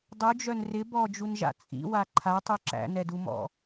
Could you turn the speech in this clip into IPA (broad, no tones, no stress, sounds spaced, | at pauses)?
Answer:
dˤ u d͡ʒ œ n r ɪ b ɔ d͡ʒ u n ʒ a̰ t͡sʼ ḭ w a ǃʰ a tˤ u ǁ æ̰ n ɛ d u m ɔ̰